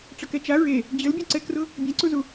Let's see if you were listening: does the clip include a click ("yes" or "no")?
yes